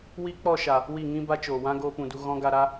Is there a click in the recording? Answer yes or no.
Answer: no